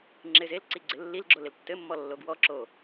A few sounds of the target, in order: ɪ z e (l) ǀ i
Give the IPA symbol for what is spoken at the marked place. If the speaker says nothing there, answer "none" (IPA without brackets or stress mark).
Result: l